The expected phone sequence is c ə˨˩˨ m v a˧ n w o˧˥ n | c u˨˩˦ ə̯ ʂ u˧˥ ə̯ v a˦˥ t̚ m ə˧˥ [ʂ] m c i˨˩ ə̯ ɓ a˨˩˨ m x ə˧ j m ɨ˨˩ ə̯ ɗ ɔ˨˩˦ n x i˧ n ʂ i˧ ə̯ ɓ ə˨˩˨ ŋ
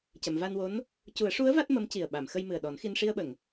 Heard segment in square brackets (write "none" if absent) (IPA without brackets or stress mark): none